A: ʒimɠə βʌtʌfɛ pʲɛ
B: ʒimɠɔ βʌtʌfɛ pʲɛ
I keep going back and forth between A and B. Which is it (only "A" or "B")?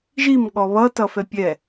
B